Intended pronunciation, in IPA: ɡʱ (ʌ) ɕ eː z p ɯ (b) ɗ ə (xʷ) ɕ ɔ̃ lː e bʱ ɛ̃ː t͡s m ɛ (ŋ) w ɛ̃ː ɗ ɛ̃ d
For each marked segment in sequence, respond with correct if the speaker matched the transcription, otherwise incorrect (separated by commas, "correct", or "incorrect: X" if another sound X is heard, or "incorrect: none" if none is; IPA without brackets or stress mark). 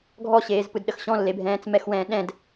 incorrect: ɔ, incorrect: d, incorrect: x, incorrect: x